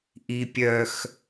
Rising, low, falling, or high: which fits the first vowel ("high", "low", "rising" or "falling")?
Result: low